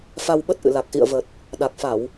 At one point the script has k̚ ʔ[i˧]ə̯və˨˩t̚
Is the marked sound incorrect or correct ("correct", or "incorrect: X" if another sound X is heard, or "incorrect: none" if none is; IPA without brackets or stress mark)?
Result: incorrect: ḭ˧˨